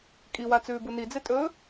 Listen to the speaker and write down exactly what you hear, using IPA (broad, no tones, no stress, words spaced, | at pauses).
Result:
kʼiwat͡sʉːbu nid͡zetʼɵː